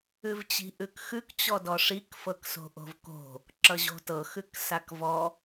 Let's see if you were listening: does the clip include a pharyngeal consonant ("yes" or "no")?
no